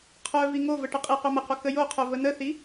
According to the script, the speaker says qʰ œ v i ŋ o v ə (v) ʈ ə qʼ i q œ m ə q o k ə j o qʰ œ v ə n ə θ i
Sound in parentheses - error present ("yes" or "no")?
yes